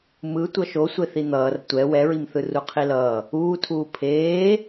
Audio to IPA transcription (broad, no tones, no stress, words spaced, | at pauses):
mɯ tʷʌʃo sʷeθin̪ʌːr tʷɛ wɛɹimθɯ ruqʰilʌː | uːtʰuː pʰeː